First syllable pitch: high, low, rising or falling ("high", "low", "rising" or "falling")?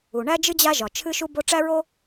low